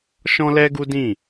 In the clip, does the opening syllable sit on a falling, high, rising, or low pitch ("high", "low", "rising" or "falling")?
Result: high